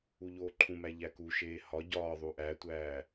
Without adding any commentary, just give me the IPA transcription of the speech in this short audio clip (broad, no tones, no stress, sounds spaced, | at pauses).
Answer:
u ʎ oː ǃʰ ũ m æ ʎ æ k u ʃ eː h ɒ ɟ ɒː ðˤ u ʔ æ tʷ æː